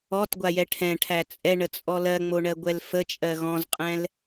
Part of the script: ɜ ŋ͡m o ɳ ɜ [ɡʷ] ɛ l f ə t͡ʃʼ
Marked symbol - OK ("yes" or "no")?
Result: yes